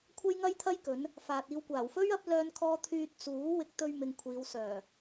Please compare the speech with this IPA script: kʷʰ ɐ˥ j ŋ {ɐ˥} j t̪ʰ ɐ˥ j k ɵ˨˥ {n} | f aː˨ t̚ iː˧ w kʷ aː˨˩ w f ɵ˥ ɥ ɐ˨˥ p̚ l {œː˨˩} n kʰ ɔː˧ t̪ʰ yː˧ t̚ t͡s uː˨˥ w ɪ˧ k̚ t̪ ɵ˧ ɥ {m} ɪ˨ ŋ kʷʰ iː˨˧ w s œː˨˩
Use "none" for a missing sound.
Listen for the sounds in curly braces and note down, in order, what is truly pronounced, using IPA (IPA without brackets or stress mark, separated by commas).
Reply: ɐ˥, n, œː˧, m